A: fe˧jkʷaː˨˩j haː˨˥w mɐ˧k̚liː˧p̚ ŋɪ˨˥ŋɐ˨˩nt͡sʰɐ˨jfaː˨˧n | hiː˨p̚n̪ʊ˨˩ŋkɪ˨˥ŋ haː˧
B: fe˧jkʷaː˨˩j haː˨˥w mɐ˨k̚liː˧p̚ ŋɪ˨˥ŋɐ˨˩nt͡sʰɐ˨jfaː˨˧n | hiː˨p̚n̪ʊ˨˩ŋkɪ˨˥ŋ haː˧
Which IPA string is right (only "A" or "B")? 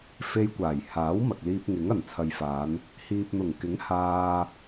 B